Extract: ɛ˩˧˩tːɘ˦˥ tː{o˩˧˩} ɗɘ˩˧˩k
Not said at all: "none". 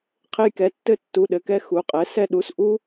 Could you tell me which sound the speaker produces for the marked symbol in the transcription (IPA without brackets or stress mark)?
u˩˧˩